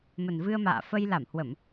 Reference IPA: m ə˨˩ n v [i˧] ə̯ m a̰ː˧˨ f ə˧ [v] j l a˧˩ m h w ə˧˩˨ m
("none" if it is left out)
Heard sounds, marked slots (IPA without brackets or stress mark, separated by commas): ɨ˧, none